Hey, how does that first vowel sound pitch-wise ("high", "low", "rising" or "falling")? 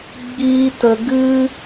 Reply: high